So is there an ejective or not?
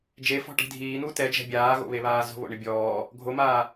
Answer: no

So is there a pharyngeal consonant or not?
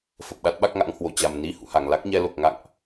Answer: no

